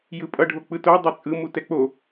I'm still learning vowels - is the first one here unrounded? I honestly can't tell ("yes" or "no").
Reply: yes